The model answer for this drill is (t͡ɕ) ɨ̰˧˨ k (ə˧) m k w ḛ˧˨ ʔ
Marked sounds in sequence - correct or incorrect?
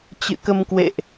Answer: correct, correct

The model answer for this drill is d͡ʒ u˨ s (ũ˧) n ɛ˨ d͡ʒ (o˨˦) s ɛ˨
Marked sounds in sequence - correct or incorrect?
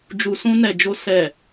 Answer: correct, incorrect: o˧

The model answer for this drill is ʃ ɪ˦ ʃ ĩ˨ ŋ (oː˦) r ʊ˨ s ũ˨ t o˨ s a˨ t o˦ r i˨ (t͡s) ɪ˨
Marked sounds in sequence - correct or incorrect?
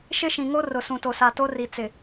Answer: incorrect: o˦, correct

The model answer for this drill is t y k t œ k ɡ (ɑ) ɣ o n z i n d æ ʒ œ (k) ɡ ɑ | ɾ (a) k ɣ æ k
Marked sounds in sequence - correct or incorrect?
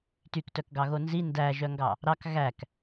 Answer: correct, incorrect: ŋ, incorrect: ɑ

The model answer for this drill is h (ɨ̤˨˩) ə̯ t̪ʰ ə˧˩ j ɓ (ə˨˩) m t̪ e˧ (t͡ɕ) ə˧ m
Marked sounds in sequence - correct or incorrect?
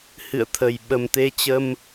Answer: incorrect: ɨ̰˧˨, correct, correct

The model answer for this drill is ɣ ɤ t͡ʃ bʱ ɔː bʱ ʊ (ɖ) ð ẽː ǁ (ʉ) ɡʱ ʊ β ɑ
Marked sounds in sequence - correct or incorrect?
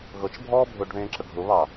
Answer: correct, incorrect: ə

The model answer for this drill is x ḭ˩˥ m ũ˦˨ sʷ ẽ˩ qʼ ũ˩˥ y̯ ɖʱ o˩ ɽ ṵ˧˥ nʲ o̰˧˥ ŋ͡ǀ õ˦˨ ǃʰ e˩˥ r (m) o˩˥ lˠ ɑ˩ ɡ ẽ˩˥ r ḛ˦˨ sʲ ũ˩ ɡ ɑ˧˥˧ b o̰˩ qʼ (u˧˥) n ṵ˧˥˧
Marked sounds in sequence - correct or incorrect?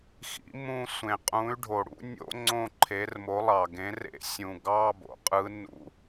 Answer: correct, incorrect: ɯ˧˥

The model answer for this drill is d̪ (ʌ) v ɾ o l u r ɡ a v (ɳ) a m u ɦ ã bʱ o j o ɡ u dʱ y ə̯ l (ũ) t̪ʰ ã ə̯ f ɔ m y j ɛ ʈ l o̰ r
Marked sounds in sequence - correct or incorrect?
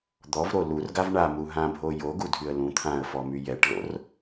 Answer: incorrect: ɔ, correct, correct

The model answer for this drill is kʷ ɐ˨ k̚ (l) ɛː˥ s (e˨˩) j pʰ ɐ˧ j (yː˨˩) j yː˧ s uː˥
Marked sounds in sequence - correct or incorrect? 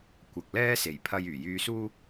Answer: correct, correct, correct

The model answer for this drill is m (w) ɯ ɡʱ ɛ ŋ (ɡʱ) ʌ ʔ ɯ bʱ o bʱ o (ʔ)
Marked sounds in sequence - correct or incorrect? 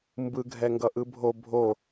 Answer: incorrect: b, incorrect: ɡ, incorrect: none

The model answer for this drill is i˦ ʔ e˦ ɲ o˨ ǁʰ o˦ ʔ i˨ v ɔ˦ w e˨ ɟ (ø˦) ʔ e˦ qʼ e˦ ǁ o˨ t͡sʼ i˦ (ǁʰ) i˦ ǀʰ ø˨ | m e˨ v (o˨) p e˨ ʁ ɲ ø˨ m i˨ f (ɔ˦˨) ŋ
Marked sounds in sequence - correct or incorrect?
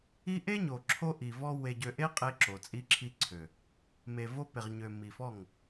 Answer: incorrect: ø˨, correct, incorrect: o˦, correct

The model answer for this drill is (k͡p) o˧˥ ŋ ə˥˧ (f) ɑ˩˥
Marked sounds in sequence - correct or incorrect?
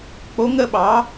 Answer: correct, incorrect: ɓ

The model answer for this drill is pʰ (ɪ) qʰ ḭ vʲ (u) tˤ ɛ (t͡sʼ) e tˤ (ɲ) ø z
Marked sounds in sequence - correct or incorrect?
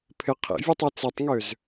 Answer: correct, incorrect: ø, incorrect: t͡s, incorrect: ŋ

